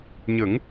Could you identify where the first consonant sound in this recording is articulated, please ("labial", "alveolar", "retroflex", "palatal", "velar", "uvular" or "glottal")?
palatal